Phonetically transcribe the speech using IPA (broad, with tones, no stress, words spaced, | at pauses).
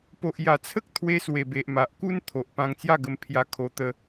po˨ʔja˨˩t͡sʰə˦k̚t̪ʰwe˧ swe˨˩be˨ʔma˨ʔ ku˦nt̪ʰo˨ʔ pã˧ŋt͡sja˥˧ɡə˧m pʰja˧kʰo˧t̪ə˧